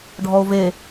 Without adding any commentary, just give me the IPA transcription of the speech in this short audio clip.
ɖʱɔo̯ve

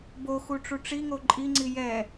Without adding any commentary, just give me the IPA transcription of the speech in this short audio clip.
boxu ʈ͡ʂuʈ͡ʂiŋo ǃʼiŋ͡ǀi jɛ

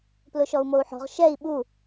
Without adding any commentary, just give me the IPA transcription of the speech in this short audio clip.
plʊʃɔu̯mou̯ħɔ̤ʁ ʃɛi̯ ɓu

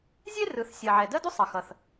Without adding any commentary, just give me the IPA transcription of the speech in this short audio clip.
zʲe˥rɯ˨˩θsʲɜ˨˩ ʕɛ˨˩dɜ˥du˥sˤʌ˨˩ xʌ˨˩θ

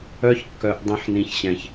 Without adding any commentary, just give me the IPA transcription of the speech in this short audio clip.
œ˦çkːœ˧ʔ dˤɛ̃˧ħnĩ˨çɕɛ̃˨ç

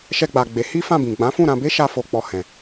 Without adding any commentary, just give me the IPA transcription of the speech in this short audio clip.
ʃɛ˧ɡ͡ba˨ ɡ͡be˨˦ hi˦fã˦˨bĩ˨ ɡ͡bã˨˦fũ˦˨ɾã˧be˦ ʃa˧fo˨k͡pɔ˨ hɛ̃˨

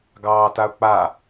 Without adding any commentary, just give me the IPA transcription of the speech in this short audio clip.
ɡɑːtaʊ̯k͡pa

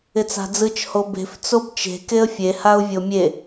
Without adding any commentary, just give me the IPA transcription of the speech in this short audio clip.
ɪt͡sa̤d͡zɯt͡ʃ hobe̤f t͡sobt͡ʃe̤ keə̯fʲe haʊ̯vʲomʲe

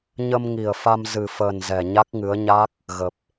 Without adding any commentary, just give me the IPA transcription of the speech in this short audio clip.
ɲə˧mŋi˨˩ə̯fa˧m zɨ˨˩fəː˨˩n zɛ˨˩ɲa˦˥k̚ŋɨ˨˦ə̯ ɲa˦˥k̚ | ɣə˨˩p̚

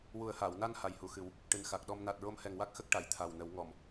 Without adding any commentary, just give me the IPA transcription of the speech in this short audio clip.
wu˨˩ə̯haː˨˩˨wna˧n ha˨˩jhu˨˩xɨ˨˩˦w | ʈɨ˨˩nxa˨˩k̚ɗɔ˧m na˨˩t̚ɹo˧mhɛ˨˩ŋwa˦˥k̚ xə˦˥k̚ʈa˨˩˨j t̪ʰa˨˩wnə˨˩˦w ŋɔ˨˩˨m

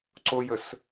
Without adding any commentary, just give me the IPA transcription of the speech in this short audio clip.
ǀojəs

